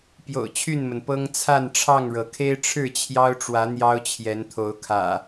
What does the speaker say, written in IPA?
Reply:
p j o̰˨˩ ʊ̯ t͡ɕʰ y˥˨ n m ə˩ n p ɤ˦ ŋ t͡sʰ a˥˨ n ʈ͡ʂʰ ɑ˥˨ ŋ ɻ ɤ˩ kʰ e˦ ɪ̯ ʈ͡ʂʰ ɻ̩˥˨ t͡ɕʰ j ɑ˦ ʊ̯ ʈ͡ʂ w ä˨˦ n̪ j ɑ˦ ʊ̯ t͡ɕʰ j ɛ˨˦ n t̪ʰ o˨˦ ʊ̯ kʰ ä̰˨˩

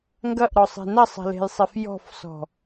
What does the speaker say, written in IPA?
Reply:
ŋ ɡ ɐ ʔ ɾ ɔ sˤ e̤ n ɐ sˤ ɛ̤ l e̤ j sˤ ɛ f j ɔ̤ f s ɔ̤

